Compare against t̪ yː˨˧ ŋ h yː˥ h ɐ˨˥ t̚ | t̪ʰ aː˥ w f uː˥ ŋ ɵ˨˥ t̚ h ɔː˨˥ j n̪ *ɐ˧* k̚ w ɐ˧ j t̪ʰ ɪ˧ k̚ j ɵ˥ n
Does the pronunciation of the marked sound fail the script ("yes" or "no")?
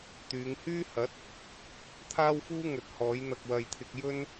no